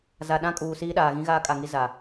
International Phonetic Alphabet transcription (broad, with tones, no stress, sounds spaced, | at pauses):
z a˨ ɗ ã˦ kʼ uː˨ s iː˦ ɗ aː˨ ɣ ĩ˦ ɣ aː˦ kʼ a˨ ŋ i˦ z a˨